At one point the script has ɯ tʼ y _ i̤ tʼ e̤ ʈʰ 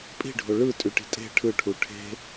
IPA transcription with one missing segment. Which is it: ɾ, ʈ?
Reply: ʈ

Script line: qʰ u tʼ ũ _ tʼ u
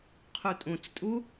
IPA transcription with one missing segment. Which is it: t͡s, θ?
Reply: t͡s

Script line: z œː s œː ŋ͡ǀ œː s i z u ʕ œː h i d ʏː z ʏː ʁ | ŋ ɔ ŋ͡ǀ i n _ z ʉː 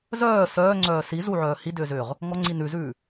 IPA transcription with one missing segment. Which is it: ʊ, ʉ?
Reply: ʉ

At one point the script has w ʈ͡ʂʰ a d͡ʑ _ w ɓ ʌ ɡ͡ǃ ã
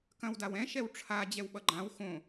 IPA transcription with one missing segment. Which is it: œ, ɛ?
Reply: ɛ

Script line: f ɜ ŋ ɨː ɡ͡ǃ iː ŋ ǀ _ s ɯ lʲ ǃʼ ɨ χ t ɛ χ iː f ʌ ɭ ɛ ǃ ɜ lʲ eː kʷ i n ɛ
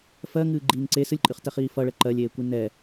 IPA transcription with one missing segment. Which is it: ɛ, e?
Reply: e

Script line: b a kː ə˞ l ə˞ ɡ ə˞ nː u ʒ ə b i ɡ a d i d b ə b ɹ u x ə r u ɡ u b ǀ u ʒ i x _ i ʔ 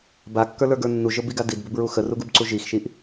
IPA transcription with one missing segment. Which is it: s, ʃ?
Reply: ʃ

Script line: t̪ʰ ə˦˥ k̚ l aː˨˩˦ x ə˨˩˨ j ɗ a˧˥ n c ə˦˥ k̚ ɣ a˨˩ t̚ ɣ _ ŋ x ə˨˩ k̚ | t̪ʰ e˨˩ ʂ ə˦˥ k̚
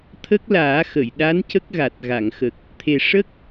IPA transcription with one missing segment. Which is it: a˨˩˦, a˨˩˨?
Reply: a˨˩˨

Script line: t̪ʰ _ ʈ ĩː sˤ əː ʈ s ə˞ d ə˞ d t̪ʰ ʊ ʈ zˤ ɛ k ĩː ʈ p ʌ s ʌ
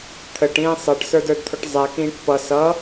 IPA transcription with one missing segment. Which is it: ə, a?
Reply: ə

